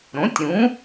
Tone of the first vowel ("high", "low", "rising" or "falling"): rising